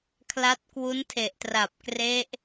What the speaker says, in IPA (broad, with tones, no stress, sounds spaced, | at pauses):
kʰ l a˦˥ t̚ k w u˦˥ n tʰ e˨˩ ʔ t r a˨˩ p̚ k r e˦˥ ʔ